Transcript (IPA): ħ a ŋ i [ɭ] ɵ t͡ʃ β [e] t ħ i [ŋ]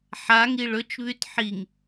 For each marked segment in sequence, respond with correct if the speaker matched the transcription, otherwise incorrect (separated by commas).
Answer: correct, incorrect, correct